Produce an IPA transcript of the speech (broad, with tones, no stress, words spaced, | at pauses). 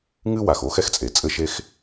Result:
ŋɨ˥wa˩x o˥xɛ˥xt͡sʼe˩ t͡sʼɘ˥ʃe˥x